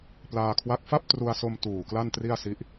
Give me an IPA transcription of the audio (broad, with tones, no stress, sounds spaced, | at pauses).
p l aː˧ kʰ w a˦˥ k̚ f a˥˩ p̚ t r u˧ a̯ s o˧ m t uː˨˩ k l a˥˩ n t r i˥˩ a̯ s i˦˥ ʔ